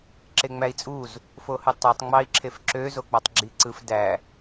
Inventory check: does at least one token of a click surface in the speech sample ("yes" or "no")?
yes